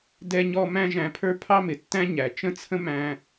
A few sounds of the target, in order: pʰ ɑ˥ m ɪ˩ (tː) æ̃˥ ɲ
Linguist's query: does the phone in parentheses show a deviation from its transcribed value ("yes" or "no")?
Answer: no